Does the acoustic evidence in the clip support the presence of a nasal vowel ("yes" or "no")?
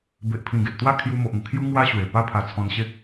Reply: yes